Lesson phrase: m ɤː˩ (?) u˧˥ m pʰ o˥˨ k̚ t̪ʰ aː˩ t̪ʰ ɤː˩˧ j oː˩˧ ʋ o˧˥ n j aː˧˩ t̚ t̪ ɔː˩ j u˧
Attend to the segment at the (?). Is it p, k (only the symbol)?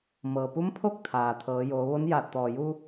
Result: p